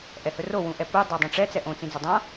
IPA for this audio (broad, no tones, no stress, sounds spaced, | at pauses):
ʔ ɛ h ɵ r o w ũ ʔ ɛ p u dˤ a dˤ ũ ʈ͡ʂ ɛ t͡s ɛ ʔ õ t͡s ĩ d͡z ɔ dˤ ã